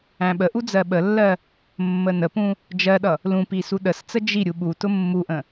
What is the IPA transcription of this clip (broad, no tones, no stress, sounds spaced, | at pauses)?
æ̃ ɓ ə ʔ u d͡z ɜ ɓ ə lː ɜ | mː ə n ə p ũ | d͡ʒ ɜ ɗ ʌ | l ũ p i s u ɗ ə s t͡s ə d͡ʒ i ɾʲ u ɓ u t ʊ mː u ʔ ə̃